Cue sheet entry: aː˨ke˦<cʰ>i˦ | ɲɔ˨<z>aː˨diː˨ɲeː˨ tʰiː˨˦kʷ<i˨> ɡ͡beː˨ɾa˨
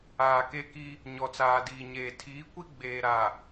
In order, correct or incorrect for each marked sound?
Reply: incorrect: k, incorrect: t͡s, incorrect: i˦

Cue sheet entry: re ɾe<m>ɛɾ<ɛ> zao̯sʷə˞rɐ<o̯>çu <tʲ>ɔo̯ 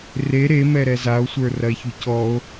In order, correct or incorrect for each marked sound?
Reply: correct, correct, incorrect: e̯, incorrect: c

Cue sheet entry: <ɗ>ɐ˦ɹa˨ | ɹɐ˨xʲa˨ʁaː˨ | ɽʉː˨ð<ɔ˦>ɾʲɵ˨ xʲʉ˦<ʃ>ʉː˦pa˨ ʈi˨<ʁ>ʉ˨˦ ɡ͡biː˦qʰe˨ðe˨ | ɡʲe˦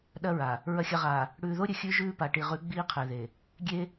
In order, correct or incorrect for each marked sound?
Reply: correct, incorrect: o˦, incorrect: ʒ, correct

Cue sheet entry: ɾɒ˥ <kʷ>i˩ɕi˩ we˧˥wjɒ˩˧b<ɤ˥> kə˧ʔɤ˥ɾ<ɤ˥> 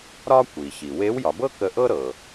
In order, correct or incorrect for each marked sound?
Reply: correct, correct, incorrect: ɤ˩

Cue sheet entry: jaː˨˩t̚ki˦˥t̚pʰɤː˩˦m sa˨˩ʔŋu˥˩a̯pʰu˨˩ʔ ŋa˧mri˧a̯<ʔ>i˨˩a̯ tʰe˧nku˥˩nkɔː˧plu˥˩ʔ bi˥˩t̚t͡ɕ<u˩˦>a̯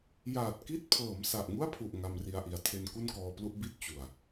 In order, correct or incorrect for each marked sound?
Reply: correct, incorrect: u˨˩

